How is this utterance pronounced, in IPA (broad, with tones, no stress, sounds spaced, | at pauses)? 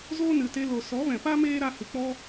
z o˦ n ɨ˨ t e˧ l o˨ s ɔ˨˦ v ɛ̃˨ p a˦ m eː˦ ɾ a˧ h ɨ˨ k͡p ɔ˦